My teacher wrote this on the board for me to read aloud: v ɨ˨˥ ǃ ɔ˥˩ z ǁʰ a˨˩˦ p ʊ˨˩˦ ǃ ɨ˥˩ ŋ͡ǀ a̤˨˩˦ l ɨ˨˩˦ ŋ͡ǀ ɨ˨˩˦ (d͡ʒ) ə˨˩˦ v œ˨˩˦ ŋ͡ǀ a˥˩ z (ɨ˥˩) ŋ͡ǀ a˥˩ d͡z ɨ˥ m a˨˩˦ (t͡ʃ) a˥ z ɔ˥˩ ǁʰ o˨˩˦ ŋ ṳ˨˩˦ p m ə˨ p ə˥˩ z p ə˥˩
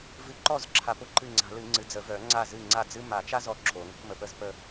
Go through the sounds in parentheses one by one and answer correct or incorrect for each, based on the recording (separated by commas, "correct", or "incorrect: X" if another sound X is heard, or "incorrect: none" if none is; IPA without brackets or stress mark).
incorrect: d͡z, correct, correct